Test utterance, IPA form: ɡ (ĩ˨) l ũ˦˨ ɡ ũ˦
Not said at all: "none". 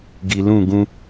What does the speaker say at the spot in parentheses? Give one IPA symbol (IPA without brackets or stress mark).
i˨